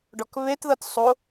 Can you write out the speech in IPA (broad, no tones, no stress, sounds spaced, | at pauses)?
ɖ ɔ k β e t ð ɤ t sˤ o